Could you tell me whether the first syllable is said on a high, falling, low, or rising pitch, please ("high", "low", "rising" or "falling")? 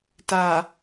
low